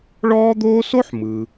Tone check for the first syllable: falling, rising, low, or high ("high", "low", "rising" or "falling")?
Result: high